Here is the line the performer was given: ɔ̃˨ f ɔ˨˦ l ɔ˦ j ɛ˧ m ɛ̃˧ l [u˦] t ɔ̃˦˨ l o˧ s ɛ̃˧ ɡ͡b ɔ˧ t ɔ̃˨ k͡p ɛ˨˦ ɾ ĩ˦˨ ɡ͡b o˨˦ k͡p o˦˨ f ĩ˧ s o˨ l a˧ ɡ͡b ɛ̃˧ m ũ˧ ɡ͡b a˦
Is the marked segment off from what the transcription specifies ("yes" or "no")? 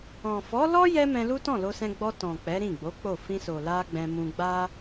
no